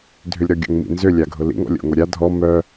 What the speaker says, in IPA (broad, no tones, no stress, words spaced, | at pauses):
dʱʏlʲɾɔɡʲo̰ŋmḭ nzʏlʲaɡʱʊ lḭŋɔ̰lʲo̰ŋo ɾʲa dʱɔ mœ